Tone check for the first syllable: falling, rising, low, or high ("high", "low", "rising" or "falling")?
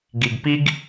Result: low